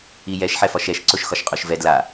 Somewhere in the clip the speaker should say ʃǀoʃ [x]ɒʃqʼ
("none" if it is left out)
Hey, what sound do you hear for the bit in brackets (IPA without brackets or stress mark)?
x